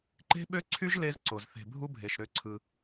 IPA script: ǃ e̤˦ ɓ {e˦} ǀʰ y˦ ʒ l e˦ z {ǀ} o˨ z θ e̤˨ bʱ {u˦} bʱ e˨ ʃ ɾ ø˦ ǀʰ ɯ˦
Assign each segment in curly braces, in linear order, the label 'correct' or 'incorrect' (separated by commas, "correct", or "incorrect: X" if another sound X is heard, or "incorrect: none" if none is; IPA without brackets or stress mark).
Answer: incorrect: ø˦, correct, correct